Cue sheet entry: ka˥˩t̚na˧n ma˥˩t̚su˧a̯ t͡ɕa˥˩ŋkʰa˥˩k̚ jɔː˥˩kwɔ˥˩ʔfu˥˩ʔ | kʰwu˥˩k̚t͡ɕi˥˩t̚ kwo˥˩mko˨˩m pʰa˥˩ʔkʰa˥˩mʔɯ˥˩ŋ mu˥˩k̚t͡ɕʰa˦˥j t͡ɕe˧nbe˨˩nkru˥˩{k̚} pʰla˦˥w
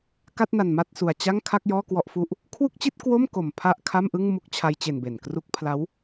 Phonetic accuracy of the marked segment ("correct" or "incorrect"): correct